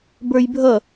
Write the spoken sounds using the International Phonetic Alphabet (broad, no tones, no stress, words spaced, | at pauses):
bə˞jbʱʌ